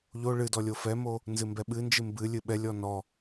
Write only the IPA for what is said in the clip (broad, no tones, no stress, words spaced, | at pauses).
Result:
ʎo ɭɨdɔ lʲofɛmo | nzɨmbɛɓɨnd͡ʒɨ mbɨ lʲɨɓɛlʲɔ nɔ